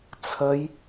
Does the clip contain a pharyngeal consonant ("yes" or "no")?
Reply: no